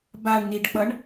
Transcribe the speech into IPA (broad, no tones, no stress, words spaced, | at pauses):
baɳniɖk͡pʌɳ